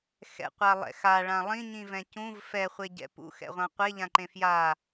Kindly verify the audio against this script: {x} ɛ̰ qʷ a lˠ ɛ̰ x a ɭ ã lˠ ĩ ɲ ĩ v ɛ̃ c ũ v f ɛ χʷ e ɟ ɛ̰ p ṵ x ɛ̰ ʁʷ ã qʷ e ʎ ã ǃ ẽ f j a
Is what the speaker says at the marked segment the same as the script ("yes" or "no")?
yes